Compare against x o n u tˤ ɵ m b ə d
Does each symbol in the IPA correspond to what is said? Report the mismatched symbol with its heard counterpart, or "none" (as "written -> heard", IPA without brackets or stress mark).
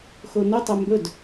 ə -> ɵ